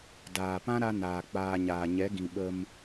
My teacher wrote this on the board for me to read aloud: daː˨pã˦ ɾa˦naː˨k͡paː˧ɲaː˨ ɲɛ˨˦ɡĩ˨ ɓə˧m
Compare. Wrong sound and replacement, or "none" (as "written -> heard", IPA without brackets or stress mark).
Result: none